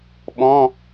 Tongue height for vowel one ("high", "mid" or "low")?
mid